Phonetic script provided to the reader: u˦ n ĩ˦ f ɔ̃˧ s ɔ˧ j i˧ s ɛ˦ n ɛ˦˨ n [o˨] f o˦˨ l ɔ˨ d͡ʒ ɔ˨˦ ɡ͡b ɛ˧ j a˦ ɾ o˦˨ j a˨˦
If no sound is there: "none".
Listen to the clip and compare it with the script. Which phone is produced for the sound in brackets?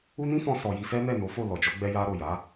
o˨˦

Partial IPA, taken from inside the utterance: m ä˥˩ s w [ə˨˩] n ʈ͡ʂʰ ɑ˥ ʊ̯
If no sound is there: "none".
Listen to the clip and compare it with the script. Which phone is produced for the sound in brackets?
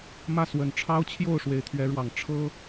ə˨˩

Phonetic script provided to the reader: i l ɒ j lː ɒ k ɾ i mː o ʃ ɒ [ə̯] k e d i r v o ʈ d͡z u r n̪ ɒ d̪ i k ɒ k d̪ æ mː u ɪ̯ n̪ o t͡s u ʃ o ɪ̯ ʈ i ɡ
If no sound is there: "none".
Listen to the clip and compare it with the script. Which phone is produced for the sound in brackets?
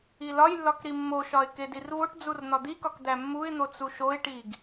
ɪ̯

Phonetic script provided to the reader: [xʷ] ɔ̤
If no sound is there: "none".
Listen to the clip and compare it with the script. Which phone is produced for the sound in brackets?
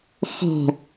x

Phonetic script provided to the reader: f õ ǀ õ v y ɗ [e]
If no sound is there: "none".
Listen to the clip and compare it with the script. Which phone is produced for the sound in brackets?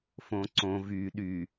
y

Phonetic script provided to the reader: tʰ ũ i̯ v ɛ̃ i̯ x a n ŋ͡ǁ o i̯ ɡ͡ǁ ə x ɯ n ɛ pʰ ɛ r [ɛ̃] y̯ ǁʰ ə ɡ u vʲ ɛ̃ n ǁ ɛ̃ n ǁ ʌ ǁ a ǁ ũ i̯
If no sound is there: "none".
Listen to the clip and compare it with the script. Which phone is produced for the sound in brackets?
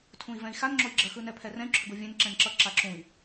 ɛ̃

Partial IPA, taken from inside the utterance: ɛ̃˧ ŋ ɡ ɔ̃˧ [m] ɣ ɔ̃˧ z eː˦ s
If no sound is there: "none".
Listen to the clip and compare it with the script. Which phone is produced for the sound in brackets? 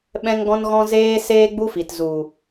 n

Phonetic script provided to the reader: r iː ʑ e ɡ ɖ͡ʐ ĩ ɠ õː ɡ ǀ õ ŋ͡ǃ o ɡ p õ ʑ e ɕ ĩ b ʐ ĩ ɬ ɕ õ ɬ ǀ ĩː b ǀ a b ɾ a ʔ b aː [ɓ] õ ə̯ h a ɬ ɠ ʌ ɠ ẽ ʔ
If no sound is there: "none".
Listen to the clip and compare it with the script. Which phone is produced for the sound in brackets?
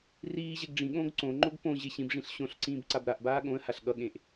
ɠ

